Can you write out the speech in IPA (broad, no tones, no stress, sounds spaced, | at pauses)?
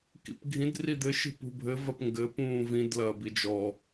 k ḭ p ɡʱ ĩ d r i d̪ ɘ ʃ i̤ p ṳ bʱ ɘ v ɐ p ŋ ɡ ɘ p ũː v ĩ d l ɐː b i d͡ʒ ɔ